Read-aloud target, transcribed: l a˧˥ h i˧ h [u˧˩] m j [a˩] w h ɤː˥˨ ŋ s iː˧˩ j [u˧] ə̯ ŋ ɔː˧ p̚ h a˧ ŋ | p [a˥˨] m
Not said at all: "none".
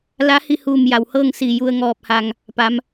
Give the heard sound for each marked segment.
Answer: uː˧˩, a˩, u˧, a˩˧

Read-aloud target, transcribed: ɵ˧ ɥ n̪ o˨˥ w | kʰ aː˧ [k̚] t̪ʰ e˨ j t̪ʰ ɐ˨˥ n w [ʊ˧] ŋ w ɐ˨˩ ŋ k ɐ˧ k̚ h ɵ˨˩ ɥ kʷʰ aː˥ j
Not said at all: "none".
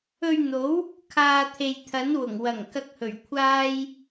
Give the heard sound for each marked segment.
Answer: none, ʊ˨˩

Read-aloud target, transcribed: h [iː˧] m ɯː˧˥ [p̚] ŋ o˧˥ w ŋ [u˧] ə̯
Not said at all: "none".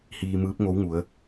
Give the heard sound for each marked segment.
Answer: iː˧, p̚, u˩˧

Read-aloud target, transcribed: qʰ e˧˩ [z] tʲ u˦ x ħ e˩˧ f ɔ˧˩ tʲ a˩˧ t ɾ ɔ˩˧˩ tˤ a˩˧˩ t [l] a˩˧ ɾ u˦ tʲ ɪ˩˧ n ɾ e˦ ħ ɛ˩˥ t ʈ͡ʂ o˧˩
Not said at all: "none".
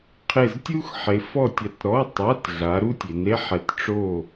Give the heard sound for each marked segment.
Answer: z, ɮ

